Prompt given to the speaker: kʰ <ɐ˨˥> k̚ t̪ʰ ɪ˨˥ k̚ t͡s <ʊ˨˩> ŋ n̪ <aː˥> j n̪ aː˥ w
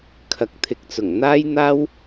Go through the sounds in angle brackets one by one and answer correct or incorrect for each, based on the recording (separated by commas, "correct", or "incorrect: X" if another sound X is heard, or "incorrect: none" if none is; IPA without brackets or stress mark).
incorrect: ɐ˨, correct, correct